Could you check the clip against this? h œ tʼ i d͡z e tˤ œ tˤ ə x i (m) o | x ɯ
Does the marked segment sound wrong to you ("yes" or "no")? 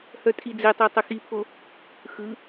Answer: yes